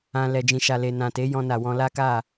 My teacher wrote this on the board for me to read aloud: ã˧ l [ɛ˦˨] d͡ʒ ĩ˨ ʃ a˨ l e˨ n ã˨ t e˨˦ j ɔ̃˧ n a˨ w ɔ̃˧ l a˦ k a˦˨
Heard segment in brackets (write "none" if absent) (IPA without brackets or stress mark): ɛ˨